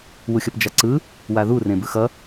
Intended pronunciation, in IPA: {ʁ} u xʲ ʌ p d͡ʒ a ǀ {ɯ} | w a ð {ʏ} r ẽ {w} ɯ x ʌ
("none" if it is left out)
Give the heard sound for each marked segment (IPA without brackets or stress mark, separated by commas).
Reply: w, ɯ, u, b